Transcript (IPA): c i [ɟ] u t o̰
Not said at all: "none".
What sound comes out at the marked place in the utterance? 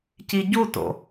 ɟ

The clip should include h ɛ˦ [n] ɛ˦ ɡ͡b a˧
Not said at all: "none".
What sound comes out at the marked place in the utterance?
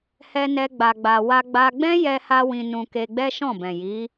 n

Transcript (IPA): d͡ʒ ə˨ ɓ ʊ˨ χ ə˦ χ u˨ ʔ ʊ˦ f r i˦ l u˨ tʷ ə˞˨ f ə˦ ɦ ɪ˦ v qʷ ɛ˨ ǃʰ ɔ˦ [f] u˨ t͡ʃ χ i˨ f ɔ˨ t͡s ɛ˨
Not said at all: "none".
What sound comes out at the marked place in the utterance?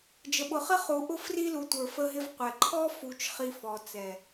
f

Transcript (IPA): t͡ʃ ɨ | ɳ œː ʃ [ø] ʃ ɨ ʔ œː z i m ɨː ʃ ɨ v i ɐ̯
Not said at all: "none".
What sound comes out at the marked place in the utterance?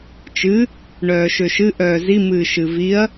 ø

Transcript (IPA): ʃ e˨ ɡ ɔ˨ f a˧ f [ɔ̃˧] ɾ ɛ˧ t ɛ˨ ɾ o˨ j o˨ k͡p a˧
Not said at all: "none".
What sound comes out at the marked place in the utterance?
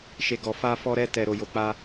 ɔ˧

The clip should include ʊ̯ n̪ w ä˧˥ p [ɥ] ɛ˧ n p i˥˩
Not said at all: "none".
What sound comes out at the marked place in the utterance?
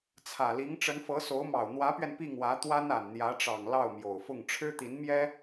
ɥ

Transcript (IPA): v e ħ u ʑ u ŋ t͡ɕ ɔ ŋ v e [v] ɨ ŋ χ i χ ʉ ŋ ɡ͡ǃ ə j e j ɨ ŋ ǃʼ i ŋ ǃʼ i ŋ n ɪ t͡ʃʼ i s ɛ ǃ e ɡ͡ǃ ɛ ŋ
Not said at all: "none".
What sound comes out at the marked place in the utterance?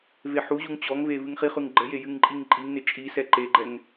v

